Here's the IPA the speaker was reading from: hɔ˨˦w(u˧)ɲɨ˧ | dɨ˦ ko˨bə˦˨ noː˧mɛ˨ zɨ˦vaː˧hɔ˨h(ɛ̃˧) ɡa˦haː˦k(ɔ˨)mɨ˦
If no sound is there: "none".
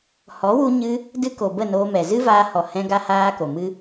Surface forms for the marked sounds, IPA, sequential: u˧, ɛ̃˧, o˨

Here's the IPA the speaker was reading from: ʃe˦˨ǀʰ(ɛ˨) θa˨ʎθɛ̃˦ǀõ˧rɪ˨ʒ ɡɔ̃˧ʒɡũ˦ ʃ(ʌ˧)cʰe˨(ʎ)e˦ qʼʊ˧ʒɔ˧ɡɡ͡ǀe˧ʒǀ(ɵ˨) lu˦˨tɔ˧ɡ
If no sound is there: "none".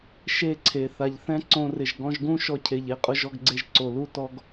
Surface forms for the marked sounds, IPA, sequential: e˨, ɔ˧, ʎ, o˨

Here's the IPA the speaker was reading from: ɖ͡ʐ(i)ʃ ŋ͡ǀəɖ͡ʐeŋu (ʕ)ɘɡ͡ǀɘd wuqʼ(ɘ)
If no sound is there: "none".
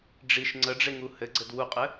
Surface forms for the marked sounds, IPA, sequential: i, h, ɘ

